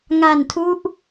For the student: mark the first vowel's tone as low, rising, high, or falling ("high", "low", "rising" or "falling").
low